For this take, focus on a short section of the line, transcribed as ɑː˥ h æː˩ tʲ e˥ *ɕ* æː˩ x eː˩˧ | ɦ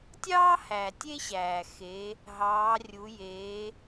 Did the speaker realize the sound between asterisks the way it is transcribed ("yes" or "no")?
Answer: yes